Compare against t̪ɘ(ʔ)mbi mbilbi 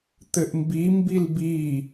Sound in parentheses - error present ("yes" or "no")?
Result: no